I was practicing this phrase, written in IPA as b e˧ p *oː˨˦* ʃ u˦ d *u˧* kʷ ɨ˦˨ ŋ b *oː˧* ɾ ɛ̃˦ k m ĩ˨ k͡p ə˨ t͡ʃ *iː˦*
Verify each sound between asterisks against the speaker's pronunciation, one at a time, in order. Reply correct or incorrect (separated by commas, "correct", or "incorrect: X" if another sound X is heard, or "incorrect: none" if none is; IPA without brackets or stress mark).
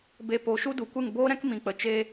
incorrect: o˨˦, incorrect: u˨, incorrect: oː˦, incorrect: eː˦